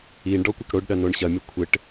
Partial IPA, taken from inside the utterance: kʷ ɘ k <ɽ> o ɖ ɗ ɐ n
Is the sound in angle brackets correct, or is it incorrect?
correct